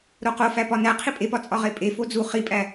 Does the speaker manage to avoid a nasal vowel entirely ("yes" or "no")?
yes